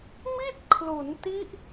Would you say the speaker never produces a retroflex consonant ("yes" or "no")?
yes